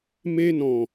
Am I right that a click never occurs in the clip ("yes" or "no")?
yes